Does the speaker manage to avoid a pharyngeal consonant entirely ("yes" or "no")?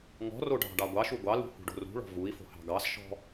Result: yes